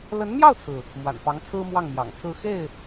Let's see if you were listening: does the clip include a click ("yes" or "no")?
no